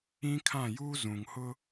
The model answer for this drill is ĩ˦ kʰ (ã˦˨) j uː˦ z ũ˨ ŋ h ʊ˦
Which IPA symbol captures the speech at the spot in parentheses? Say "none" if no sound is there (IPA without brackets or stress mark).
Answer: ã˦˨